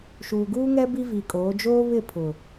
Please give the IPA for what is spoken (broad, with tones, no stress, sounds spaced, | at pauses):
ʃ uː˨ ɡ uː˦ ŋ ɛ˦ b i˦ v i˨ kʼ oː˨˦ d͡ʒ oː˦ β ɪ˦˨ pʰ ʊ˨